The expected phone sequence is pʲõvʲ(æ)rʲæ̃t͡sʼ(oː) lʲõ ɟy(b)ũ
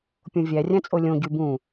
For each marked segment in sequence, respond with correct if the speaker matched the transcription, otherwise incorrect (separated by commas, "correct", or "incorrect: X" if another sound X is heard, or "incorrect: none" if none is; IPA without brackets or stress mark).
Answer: correct, incorrect: o, correct